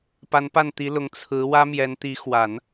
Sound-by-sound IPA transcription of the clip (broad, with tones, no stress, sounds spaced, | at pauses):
p a˧˥ n p a˥˩ n t̪ i˧˥ l ʊ˧˥ ŋ t͡sʰ ɹ̩˧˥ w ä˥ m j ɛ˧˥ n t̪ i˧˥ x w a˨˩˦ n